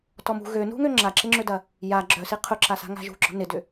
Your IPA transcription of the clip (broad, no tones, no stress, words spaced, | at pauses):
tɔmṳ ɣønṳŋø ŋ͡ǁaǁɪŋ͡ǁødɐ | ja ɡ͡ǁœsi qʰʊǁasa̤ ŋa̤ʒṳɡ͡ǁɔ̤ nɪdʏ